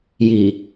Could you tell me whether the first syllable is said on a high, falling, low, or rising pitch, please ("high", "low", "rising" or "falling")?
low